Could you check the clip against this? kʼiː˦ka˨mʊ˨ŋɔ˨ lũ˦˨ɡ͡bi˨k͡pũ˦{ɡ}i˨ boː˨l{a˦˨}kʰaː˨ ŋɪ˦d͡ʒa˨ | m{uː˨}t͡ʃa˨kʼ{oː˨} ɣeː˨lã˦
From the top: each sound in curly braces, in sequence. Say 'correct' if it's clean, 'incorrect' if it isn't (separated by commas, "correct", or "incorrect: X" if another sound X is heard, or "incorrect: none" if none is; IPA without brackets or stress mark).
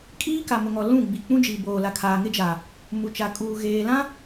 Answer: incorrect: d͡ʒ, incorrect: a˨, incorrect: u˨, incorrect: uː˨